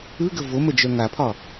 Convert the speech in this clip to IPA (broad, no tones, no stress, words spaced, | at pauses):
ɯɡə voməd͡ʒœ ŋapʰɒ